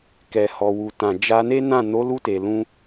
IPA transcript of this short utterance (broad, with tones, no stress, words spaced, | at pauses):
kɛ˨hɔ˨wu˨tã˨ d͡ʒa˧ne˦nã˦˨ no˨˦lu˧te˨lũ˧